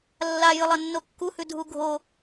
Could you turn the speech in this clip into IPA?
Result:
lː a j ɨ lˠ ɐ nː o kː u h ʉ dʱ u ɡʱ o

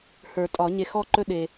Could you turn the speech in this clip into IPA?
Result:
h ə˞˨˩˦ tʼ ɒ˨˩˦ ɲ e˨ x ɔ˥˨ ǃ ɵ˥˨ ɗ e˨

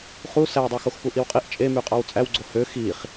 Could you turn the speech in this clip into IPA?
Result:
χ u s æ w dˤ ɑ x o x p u ʔ i w qʼ i ʔ t͡ʃʼ e m y qʼ ɑ w t͡sʼ æ w ɡ͡ǀ o h ø x i χ

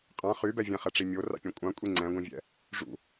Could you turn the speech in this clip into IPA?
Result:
qʼ ã χ y b ɛ vʲ ɛ̃ χ ɛ ʈ͡ʂ i mʲ o r a̰ pʲ ã kʷʼ ã kʷʼ i ŋ͡ǀ ɛ̃ ɡʷ ĩ vʲ ɛ̰ | ʐ ṵ

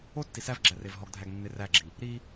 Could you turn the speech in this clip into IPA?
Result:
o tː i s æ v ɡ͡ǁ æ r e v ɦ ɔ ɡ dʱ æ ɡ nː e r æ ɡ͡ǁ i | ɾ i

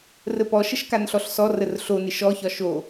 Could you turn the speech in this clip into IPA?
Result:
r ə p ɔ ʃ ə ʃ k a n ɬ ɔ ɬ s ɔ r ə r ɬ o n ɪ ʃ ɔ ç ɒ ʃ o

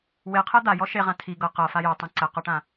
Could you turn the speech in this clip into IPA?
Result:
w e qʰ ɛ d̪ a j ɔ ʃ e ʁ ã tʰ i ɡ ɤ q ɤ f a j ɤ tˤ ɛ̃ ǀ ɛ q ɔ ʈ ã

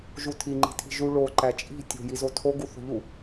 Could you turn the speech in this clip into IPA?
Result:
ʒ u tʰ i ŋ͡ǃ i̤ tʰ i̤ ʒ u ɭ o ǃ æ t͡ʃʼ i̤ tʲ o̤ j i z o tʰ o ɡ u θ o̤ ʎ u

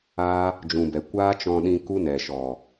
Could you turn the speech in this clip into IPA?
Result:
aː˦ | d͡ʒ ũ˨ b ɛ˨ kʷ aː˦ t͡ʃ ɔ̃˧ ɗ ĩ˧ k u˦ n ɛ˨ ʃ ɔ˨

